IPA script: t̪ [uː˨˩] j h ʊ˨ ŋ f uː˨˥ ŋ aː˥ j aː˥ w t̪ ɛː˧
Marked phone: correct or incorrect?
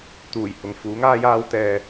correct